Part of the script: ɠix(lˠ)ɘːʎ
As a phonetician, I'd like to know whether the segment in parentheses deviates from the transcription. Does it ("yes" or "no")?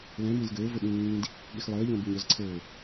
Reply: no